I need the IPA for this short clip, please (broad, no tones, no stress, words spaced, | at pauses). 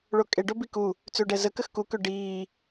ɭokʼe ɖobiku | t͡søɖɛzə kəxku køɖiː